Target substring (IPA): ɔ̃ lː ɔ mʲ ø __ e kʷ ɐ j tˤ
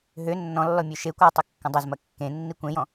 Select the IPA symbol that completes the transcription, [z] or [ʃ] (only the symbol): ʃ